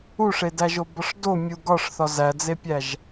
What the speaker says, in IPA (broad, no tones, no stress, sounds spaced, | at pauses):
u ʂ e d æ ʒ o b ɒ ʂ d o mʲ u ɡ ɒ ʂ θ ɒ z æ d͡z e pʲ æ ʒ